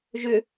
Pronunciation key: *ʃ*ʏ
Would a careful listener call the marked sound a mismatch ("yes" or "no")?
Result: yes